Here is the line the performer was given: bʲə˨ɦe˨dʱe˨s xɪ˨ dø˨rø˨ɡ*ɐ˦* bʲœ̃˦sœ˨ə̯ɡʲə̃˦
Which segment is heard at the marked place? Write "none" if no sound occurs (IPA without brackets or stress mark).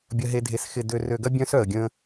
ɐ˦